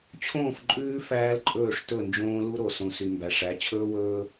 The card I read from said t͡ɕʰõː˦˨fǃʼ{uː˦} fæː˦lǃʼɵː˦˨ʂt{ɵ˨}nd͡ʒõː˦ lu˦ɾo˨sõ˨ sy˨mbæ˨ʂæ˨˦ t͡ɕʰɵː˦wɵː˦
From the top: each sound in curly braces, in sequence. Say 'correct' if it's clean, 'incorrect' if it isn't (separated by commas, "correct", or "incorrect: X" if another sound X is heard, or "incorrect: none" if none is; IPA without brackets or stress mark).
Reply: incorrect: ʉː˦, incorrect: ɵ˦˨